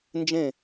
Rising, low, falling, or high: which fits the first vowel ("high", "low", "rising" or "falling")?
falling